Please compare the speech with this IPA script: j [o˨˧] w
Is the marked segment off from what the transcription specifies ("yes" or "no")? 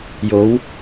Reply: no